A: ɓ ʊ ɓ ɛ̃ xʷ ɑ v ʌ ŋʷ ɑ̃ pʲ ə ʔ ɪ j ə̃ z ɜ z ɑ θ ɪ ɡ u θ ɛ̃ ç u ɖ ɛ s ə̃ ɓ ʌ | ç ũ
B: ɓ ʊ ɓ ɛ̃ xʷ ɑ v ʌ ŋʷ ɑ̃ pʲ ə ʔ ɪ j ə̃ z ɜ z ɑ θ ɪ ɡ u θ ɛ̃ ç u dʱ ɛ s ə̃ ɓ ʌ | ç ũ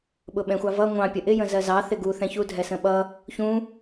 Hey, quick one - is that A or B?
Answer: B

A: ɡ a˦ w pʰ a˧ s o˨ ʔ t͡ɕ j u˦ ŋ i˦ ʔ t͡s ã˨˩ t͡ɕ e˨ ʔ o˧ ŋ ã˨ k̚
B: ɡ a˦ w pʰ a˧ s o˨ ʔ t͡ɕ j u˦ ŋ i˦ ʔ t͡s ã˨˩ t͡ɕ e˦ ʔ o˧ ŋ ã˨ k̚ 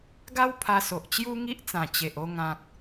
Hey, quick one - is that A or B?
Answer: A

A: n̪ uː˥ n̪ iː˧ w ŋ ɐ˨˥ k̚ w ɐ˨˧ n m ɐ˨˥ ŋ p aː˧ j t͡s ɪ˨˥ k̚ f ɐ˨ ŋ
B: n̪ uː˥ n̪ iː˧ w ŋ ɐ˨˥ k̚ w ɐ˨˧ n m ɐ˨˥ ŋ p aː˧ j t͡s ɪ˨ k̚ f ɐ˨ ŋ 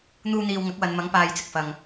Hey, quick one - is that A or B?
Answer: B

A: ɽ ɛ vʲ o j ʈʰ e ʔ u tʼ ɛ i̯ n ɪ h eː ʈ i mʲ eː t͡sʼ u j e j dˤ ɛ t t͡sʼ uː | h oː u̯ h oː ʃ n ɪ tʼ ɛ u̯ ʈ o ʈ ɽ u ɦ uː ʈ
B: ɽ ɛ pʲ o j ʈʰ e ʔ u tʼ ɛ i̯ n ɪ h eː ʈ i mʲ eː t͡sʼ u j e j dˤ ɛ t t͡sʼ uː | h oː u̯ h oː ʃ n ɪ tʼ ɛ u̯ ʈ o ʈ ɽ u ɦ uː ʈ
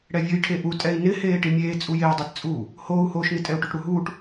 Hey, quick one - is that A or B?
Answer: A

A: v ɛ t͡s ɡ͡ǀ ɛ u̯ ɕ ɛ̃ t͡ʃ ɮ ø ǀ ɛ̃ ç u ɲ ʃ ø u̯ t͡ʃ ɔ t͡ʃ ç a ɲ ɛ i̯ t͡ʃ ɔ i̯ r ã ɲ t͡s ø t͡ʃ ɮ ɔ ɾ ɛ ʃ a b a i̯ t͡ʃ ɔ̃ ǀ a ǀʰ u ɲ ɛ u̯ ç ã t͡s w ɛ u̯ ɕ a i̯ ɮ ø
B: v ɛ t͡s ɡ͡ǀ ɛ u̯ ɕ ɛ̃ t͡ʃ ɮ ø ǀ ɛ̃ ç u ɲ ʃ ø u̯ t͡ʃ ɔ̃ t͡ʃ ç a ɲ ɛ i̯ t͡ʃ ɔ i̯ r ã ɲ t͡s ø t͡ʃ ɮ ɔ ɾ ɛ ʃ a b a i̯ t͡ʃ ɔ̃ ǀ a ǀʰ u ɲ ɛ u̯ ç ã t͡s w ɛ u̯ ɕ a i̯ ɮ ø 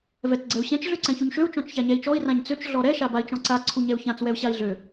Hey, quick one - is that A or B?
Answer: B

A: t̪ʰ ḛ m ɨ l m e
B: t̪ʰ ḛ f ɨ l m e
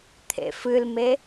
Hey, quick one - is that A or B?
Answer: B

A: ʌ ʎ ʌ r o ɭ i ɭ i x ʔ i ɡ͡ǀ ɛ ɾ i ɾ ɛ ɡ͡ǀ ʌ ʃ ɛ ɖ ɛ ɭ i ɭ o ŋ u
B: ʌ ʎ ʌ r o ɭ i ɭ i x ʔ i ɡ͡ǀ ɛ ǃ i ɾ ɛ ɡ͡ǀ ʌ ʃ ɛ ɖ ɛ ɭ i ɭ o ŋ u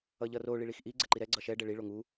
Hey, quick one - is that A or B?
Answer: B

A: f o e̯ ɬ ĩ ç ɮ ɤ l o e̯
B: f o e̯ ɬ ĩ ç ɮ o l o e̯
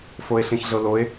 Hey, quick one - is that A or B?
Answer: A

